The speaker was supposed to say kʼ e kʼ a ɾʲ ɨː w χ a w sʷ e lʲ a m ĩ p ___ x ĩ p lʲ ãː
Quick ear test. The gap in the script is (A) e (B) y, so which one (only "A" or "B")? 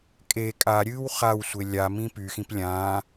B